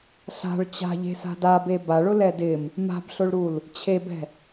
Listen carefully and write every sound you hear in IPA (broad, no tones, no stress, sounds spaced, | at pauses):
ɬ a̤ ɭ t͡ɕ a̤ ʎ e̤ s a̤ d a b e b a ɭ ʊ l ɛ d ɪ m | m a̤ b ɬ ʊ ɭ ɾ u l | t͡ɕʰ e b ɛ̤